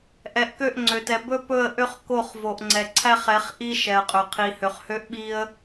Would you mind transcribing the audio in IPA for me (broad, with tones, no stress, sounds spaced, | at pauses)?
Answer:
ʔ ɛ˨ ʔ k ø˦˨ ʔ ŋ͡ǀ ø˨ t ɛ˨ b ɵ˦ p ɵ˦˨ ə̯ ʔ ø˦ χ k o˦˨ χ v o˨ ʔ ŋ͡ǀ ɛ˨ ǀʰ æ˦ χ ɛ˨˦ χ ʔ i˦ ʃ ɛ˨ ə̯ qʼ ɵ˨ qʰ i˨ h ø˨ χ h ø˦ ʔ ɓ i˦ ə̯